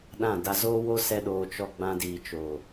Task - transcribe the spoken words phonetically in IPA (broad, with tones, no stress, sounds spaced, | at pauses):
ɗ ã˦˨ d a˧ z oː˦ w o˦ s ɛ˦ ɗ oː˧ t͡ʃ ɔ˧ ɡ͡b ã˧ d iː˨ t͡ʃ oː˨